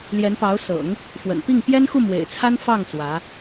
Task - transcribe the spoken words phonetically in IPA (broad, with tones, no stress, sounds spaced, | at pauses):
l j ɛ˧˥ n p ɑ˧˥ ʊ̯ s ɤ̰˨˩˦ ŋ | f w ə̰˨˩ n p i˥˩ ŋ p j ɛ˥ n x u˥˩ m w ḛ˨˩ ɪ̯ t͡sʰ a˥ n f ɑ˥˩ ŋ s w ä˧˥